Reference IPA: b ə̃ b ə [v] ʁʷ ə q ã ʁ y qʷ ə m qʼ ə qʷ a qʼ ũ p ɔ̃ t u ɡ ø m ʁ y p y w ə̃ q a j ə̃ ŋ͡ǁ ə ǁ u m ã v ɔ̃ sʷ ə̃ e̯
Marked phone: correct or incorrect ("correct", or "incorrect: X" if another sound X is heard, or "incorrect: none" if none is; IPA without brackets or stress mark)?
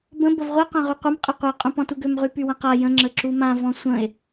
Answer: correct